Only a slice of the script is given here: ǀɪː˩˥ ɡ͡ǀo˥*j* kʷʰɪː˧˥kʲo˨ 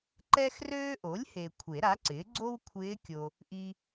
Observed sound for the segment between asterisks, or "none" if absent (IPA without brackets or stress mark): w